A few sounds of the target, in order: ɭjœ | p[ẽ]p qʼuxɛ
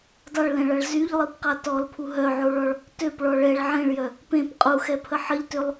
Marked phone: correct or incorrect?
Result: correct